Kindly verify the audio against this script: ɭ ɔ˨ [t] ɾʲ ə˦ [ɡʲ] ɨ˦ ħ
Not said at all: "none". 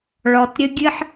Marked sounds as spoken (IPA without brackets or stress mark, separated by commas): t, ɡʲ